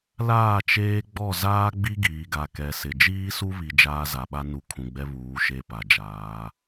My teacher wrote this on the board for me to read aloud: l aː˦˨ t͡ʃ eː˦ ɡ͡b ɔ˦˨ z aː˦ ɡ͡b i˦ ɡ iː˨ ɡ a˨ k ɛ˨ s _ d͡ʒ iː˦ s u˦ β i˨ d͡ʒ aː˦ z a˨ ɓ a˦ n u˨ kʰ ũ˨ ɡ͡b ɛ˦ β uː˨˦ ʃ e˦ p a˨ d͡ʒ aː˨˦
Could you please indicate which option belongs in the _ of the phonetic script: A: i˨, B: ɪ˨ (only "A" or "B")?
B